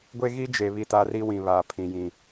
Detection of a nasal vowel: present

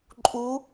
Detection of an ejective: present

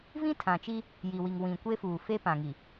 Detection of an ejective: absent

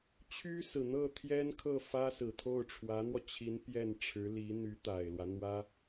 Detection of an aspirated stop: present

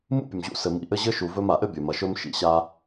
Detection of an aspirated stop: absent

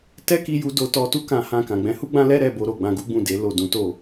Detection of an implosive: absent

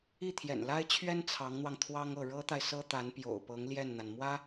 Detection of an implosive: absent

